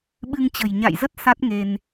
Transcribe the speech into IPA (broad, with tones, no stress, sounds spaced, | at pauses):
ɓ ɨ˧ ŋ t͡ɕ ə̤˨˩ j ɲ a̰˧˨ j z ə˦˥ t̚ s a˦˥ t̚ ŋ e˧ n